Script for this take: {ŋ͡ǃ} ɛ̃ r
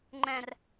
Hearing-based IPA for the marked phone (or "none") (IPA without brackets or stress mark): ŋ͡ǃ